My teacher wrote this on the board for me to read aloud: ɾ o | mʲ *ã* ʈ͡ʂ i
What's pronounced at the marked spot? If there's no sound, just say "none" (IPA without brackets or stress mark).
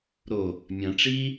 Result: ã